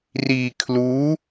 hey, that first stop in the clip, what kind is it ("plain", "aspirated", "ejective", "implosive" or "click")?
aspirated